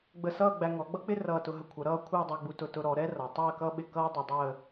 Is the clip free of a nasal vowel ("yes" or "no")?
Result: yes